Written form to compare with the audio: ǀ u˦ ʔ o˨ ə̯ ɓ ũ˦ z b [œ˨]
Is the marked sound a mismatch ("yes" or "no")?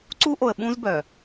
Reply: no